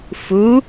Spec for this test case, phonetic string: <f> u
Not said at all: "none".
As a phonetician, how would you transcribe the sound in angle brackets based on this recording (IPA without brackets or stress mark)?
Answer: f